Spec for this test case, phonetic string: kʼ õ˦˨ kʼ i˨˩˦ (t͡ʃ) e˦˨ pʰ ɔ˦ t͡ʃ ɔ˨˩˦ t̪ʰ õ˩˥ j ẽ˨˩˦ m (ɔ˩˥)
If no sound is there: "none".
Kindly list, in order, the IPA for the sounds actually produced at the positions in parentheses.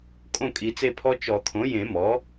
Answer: t͡s, ɔ˩˥

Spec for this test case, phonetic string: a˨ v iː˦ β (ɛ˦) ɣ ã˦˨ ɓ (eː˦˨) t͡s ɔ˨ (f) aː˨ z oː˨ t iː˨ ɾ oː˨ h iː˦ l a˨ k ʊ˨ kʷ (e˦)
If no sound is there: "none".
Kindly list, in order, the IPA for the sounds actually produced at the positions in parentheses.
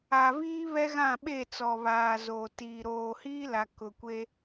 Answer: ɛ˦, eː˦˨, β, e˦

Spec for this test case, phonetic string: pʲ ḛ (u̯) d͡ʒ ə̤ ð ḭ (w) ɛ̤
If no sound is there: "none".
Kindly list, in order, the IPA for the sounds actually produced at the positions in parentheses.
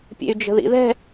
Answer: y̯, ð

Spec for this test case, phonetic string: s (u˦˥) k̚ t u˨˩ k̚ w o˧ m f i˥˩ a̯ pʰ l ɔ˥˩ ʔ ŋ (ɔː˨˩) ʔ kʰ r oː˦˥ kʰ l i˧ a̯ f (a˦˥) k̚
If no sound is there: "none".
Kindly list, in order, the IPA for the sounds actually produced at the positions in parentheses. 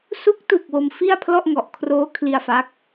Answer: u˦˥, ɔ˨˩, a˦˥

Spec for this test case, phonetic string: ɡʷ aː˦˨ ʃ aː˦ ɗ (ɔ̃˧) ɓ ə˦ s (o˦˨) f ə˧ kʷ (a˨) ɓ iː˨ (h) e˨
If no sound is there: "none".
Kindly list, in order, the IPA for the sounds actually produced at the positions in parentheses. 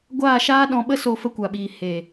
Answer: ɔ̃˧, o˧, a˨, h

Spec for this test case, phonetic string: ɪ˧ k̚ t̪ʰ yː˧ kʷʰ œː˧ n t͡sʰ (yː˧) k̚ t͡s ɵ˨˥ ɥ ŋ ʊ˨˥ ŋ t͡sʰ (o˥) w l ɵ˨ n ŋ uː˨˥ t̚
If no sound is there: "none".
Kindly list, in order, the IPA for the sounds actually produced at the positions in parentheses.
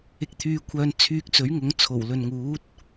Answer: yː˧, o˨˩

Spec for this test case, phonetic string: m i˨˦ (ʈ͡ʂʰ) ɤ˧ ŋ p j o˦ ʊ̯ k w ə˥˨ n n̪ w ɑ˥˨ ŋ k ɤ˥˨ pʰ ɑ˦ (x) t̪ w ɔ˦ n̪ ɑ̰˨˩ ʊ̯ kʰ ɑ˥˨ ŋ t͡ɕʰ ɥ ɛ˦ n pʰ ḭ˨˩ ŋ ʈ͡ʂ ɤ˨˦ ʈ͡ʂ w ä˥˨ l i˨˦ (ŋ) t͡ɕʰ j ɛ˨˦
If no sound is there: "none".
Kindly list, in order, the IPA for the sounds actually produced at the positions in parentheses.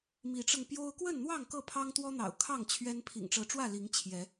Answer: ʈ͡ʂ, ŋ, ŋ

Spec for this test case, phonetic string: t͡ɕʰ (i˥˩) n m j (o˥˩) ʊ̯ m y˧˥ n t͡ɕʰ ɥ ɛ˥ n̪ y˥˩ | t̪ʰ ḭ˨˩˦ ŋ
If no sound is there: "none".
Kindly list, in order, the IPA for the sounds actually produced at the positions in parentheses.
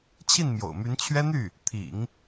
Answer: i˥˩, o̰˨˩

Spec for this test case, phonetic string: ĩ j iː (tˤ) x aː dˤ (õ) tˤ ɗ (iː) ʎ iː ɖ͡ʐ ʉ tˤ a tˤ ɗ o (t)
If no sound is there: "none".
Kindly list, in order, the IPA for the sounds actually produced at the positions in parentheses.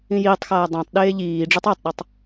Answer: tˤ, õ, eː, tˤ

